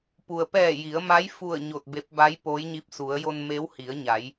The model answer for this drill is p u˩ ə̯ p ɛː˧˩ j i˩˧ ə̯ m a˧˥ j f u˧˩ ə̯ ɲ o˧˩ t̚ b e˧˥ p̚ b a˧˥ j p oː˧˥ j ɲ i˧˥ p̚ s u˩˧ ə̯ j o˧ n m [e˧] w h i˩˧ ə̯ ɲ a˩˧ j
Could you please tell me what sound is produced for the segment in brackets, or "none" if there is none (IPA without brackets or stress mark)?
e˧˥